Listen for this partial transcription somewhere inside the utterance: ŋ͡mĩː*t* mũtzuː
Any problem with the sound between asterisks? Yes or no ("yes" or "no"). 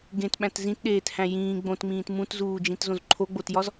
no